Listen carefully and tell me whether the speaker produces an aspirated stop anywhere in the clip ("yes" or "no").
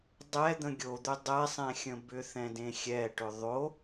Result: no